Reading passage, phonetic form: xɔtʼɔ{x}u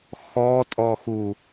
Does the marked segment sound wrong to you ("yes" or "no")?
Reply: no